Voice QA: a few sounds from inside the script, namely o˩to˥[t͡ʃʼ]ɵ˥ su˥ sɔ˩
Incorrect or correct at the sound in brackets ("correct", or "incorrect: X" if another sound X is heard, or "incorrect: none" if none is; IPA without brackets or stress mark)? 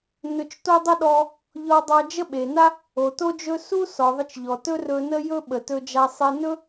incorrect: d͡ʒ